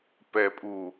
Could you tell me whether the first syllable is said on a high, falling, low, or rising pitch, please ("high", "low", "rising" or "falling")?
low